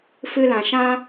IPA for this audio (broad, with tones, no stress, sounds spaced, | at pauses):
f ɨ˧ l ã˨ ʃ ã˦